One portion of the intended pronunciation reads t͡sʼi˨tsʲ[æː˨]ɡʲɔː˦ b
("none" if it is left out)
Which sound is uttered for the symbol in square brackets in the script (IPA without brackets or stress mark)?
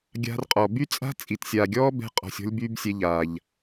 aː˨